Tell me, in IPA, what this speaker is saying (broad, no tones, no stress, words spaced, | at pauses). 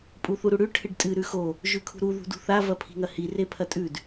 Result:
pʼuθuɾuɽʉ ʈʰɨɖtʼɨ ɾʉxo | ʒʉkʰṳɾu ðṳdṳθa vɐpʰi̤ŋɐhi repʰɐtʼʉd